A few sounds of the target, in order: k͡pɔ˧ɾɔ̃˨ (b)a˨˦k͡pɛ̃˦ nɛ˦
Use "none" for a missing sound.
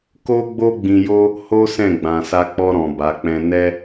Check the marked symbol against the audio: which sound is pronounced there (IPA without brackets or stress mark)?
b